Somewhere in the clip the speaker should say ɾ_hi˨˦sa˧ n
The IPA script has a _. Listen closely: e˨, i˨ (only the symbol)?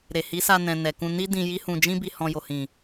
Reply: e˨